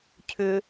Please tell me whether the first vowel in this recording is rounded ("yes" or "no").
yes